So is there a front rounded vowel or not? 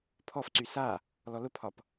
yes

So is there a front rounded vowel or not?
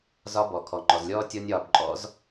no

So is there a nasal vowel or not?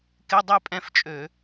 yes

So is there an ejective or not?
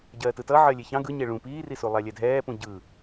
no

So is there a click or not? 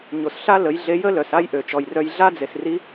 no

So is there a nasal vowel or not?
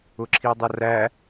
no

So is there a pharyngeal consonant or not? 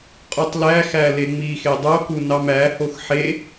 yes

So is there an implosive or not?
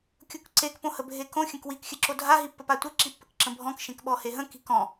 yes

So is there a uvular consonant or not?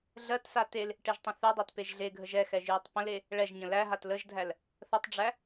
no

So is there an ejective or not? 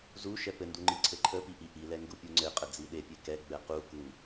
yes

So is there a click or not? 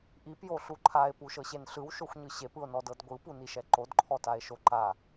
yes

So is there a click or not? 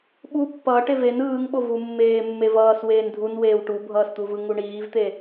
no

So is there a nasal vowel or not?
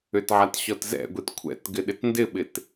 no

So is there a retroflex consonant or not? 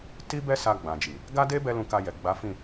no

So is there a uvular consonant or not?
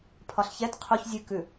yes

